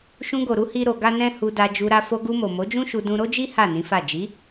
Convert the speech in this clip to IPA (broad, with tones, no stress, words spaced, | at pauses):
ʃũ˧ɡo˨ɾu˧ hi˦ɾo˧ ɡa˦nɛ̃˦ hu˧da˧ d͡ʒu˧ɾa˧ fo˧ɡu˧mo˨ mo˨˦d͡ʒũ˦ʃu˧ dũ˧ɾo˦d͡ʒi˦ ha˦˨nĩ˨˦fa˦˨ d͡ʒi˨˦